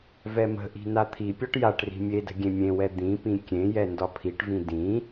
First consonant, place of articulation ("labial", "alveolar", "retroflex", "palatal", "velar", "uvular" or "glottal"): labial